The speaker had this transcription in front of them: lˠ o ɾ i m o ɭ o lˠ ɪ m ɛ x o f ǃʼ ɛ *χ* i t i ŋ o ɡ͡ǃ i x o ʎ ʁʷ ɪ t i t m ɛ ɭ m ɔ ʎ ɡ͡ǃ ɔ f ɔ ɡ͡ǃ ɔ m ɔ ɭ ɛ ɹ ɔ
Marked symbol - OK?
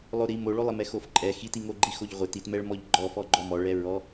no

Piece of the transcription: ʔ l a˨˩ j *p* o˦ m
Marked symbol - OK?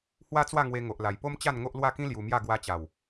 yes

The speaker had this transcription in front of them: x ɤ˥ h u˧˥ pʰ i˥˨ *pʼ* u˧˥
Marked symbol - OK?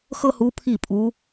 yes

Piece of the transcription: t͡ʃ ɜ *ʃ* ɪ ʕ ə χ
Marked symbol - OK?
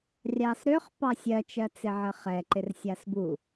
no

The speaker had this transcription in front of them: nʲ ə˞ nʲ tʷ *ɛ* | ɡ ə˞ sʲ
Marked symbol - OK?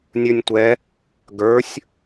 yes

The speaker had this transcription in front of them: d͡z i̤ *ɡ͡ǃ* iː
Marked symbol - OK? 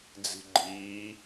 yes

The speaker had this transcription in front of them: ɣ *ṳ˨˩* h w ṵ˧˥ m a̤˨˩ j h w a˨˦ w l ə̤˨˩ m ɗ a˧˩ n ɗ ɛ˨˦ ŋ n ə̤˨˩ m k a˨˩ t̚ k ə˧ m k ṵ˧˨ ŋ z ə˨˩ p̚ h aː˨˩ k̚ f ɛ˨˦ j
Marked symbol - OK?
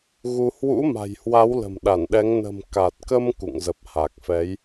no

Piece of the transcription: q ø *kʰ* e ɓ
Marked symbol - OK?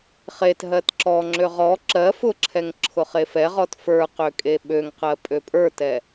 no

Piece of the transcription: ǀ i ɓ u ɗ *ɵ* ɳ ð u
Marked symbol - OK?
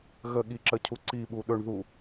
yes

